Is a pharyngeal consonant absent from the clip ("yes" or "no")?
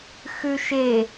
yes